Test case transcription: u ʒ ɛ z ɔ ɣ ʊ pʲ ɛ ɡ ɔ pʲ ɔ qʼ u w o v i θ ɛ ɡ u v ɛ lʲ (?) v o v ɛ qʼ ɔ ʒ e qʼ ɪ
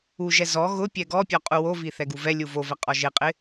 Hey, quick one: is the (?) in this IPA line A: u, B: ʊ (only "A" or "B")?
A